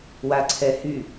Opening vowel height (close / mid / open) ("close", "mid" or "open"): open